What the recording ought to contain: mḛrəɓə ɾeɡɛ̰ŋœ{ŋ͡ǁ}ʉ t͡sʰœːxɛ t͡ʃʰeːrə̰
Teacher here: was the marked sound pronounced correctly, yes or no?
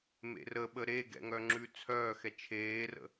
yes